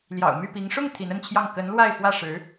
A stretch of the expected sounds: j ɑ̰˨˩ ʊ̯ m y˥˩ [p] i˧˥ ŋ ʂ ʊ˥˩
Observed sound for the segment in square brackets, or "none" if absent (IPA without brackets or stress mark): p